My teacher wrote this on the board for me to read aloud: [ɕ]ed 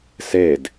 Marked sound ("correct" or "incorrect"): incorrect